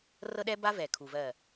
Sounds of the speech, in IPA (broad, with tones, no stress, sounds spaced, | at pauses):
r ɤ˦ ɗ ɛ˦ b a˦ v ɛ˨ kʰ u˨ v ɜ˦˨